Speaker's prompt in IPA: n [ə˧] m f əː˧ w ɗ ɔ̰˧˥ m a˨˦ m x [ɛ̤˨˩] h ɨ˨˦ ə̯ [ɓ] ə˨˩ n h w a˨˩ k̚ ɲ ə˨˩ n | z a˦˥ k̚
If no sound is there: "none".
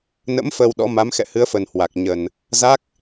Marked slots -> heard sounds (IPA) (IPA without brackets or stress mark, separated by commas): ə̰˧˥, ɛ̰˧˨, f